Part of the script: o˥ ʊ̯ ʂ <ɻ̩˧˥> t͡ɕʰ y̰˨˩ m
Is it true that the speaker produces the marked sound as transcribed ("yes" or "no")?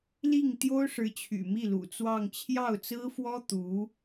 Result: yes